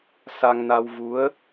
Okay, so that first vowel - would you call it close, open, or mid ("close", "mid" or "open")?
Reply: open